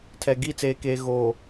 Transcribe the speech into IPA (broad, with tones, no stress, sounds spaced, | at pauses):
tʰ ɛ˨ ɡ i˦˨ t͡s eː˨ k eː˨ ɣ oː˨